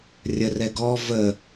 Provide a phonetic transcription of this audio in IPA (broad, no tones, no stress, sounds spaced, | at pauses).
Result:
rʲ ə r ɛ ɡ ɔ v ə